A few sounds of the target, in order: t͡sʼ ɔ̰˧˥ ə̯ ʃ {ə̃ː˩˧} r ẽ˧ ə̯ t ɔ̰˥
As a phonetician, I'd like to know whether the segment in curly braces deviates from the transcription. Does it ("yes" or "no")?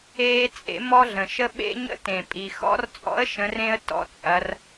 yes